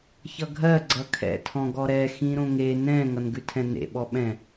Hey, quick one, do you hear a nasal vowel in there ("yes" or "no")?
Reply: yes